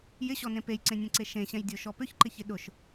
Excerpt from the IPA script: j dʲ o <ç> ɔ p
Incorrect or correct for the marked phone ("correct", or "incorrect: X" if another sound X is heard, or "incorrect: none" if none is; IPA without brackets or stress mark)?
incorrect: ʃ